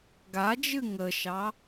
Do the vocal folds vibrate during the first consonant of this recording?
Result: yes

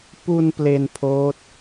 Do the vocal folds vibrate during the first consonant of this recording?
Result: no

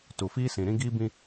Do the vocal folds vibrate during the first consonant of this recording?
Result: no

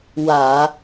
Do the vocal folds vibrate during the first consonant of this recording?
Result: yes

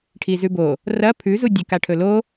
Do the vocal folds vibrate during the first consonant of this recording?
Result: no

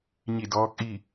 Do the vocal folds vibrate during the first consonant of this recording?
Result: yes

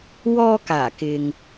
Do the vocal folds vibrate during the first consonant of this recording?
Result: yes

